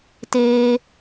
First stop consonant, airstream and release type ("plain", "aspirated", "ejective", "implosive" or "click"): plain